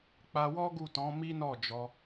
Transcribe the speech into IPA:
k͡p a˧ w ɔ˦ ɡ u˦˨ t ɔ̃˨˦ m i˦ n ɔ˦˨ d͡ʒ ɔ˧

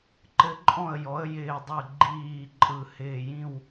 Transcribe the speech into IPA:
ǃ ɘ˦˥ ǃʼ ɔ̃˥˨ ə̯ j ɔ˨˥ ə̯ j ɪː˧˩ dˤ ɯ˧˩ ɡ͡ǃ iː˧˩ ǃʼ ɯ˧˩ h ɪː˥˨ j ĩ˥˨ w

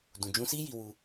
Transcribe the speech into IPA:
d ũ˨ d͡ʒ ũ˧ s i˦ j i˧ w u˧

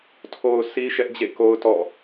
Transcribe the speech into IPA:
tʰ o˨ ʊ̯ sʰ i˦ ʃ ɛ˦ ʔ d͡ʑ ḛ˦˨ k o˦ ʊ̯ t ɔ̰˦˨

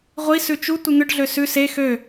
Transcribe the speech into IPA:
ʁʷ i s ʉ t͡ʃ u tʷ i n̪ ʏ ɖ ɮ ø s ʉ s e x ø

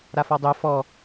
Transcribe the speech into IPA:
ɾ a f ɔ dˤ œ f ɔ

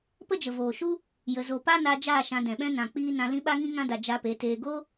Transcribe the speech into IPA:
p ə˦ d͡ʒ ə˨ v oː˨ ʃ u˦ | j ə˧ z o˧ p a˦ n a˧ d͡ʒ aː˦˨ ʃ ã˧ d ɛ̃˨ ɓ ɛ̃˦ n ã˨ k͡p iː˧ n ã˧ l ĩ˦ ɓ a˦ ŋ ĩ˦ ŋ ã˧ d a˨ d͡ʒ a˧ p e˨˦ t eː˧ ɡ o˦

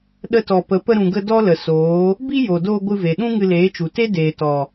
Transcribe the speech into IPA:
ɗ ə˧ t ɔ˨ p ə˨˦ p ə˧ ɾ ũ˨ ɡ ə˧ d ɔ˦ l ə˨ s oː˨˦ | b i˦ j o˨ d oː˧ ɡʷ ɨ˧ v e˨ ɗ ũ˦ ŋ ɨ˧ l eː˨˦ t͡ʃ u˨ t e˦ d eː˨ t ɔ˨

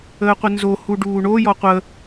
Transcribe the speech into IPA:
əː qʷ ə n z o h u ɖ uː ɳ o j ɔ qʷ ə

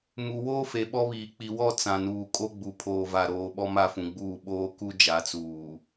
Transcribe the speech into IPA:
m u˨ w oː˦ f e˨ ɓ ɔ˦ β iː˨ k͡p i˨ w ɔ˦˨ t͡s ã˨ n uː˨ kʼ o˦ ɡ͡b u˨ pʰ oː˨ v a˨ ɾ oː˨ ɓ ɔ˦ m a˦˨ f ũ˨ ɡ͡b uː˦˨ ɓ oː˦ k u˦ d͡ʒ a˨˦ t͡s uː˨

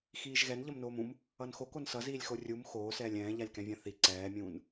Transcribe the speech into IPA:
x iː ʒ ɣ ɛ n ʎ ʌ m n oː m ũ m | ʌ n x o k o n s ʌ z iː lʲ x o rʲ u m x oː s ɛː lʲ ɛ̃ː ʎ a lʲ k ɛ̃ vʲ ã θ i ǀ ɛː mʲ ũː n

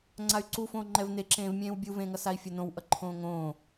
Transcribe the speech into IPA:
ŋ͡ǀ a y̯ ǀ u f õː ŋ͡ǃ ɛ v n e ǁ ẽː v mʲ ẽː w bʲ u v ẽː ŋ ʌ s a i̯ fʲ ʌ n õ w ʔ ʌ ǃʰ õː ŋ õː

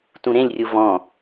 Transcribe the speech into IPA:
t ũ ɾ ẽ lʲ rʲ u v ɔ̃

